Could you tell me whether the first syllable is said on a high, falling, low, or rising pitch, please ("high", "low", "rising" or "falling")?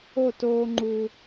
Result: falling